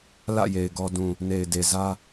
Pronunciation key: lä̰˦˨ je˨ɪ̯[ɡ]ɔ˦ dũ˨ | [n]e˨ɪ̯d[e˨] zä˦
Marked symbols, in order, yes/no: yes, yes, yes

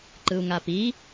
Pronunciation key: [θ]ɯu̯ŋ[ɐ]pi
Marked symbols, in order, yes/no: no, no

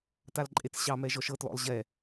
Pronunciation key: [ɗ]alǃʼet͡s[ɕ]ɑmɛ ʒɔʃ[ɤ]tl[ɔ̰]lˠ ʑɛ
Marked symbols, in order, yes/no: no, yes, yes, yes

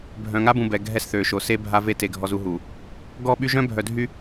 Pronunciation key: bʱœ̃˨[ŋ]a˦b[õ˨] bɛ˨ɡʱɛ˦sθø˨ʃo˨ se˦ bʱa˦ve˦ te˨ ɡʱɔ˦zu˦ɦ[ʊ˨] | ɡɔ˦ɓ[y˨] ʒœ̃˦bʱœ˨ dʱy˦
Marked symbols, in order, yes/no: yes, no, no, no

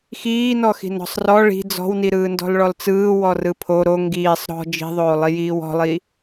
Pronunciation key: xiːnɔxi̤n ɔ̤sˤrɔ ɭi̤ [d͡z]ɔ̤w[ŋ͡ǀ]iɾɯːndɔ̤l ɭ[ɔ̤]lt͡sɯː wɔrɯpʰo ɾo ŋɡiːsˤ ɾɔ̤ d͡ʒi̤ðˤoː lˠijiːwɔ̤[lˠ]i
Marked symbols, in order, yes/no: yes, no, no, yes

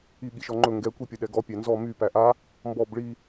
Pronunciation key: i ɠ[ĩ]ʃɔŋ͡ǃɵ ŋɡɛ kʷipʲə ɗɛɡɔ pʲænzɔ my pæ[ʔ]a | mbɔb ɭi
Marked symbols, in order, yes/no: no, yes

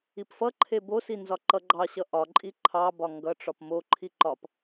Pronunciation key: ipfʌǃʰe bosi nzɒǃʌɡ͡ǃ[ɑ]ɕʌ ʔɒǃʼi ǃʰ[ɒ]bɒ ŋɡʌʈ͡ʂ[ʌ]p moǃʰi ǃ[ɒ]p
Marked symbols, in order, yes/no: yes, no, no, yes

